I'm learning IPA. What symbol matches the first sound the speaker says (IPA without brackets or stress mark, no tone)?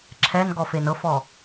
ǁʰ